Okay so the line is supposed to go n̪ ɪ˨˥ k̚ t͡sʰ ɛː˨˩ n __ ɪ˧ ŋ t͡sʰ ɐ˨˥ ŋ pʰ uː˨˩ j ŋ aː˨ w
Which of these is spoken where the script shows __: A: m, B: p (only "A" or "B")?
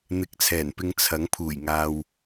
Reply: B